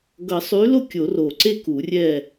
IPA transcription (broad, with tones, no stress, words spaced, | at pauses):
ɡʌ˨˩˦sˤy˨˥lo˥˨ kʲo˨˩˦ro˨˩ǀe˥˨ku˨˩˦ rʲɛ˥˨